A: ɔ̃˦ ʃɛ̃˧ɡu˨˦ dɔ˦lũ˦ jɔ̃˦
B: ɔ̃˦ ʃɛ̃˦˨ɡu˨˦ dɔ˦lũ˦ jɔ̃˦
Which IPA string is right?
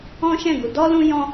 B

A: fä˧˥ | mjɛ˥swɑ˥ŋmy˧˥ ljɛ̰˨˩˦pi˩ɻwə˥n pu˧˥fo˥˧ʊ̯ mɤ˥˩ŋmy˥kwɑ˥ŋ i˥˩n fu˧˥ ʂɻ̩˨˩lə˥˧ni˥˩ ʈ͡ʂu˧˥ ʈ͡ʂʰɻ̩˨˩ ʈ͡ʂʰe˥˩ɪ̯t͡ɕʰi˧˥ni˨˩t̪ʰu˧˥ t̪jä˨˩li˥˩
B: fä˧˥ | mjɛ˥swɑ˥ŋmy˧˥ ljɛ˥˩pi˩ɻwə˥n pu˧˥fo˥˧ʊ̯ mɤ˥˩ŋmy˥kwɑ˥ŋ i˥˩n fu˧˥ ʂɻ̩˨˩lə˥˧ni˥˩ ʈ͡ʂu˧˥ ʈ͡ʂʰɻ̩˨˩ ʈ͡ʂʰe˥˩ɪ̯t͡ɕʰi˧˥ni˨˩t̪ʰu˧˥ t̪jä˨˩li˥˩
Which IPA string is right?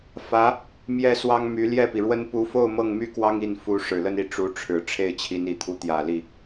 B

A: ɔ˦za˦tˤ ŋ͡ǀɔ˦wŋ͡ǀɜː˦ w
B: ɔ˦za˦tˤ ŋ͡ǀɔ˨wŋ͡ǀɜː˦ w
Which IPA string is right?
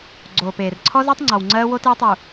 B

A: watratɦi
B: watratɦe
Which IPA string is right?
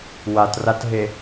B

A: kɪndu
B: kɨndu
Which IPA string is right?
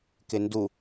A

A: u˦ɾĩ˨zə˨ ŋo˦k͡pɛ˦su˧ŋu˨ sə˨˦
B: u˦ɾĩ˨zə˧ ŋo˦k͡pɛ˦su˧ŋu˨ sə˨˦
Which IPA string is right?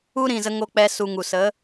B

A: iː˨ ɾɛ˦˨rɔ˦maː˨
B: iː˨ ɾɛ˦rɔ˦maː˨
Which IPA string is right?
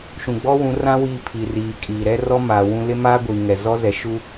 B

